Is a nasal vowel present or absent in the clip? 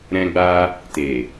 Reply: present